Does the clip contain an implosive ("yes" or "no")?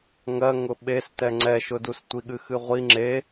yes